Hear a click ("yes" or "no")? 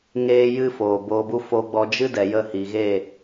no